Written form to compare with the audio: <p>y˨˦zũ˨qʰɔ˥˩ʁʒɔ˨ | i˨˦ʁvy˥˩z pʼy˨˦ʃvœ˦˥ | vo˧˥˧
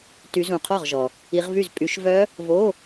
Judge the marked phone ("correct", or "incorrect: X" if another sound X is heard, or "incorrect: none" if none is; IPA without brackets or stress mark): incorrect: t